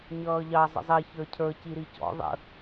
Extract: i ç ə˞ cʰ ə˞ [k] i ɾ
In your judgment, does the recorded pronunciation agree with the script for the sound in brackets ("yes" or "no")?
no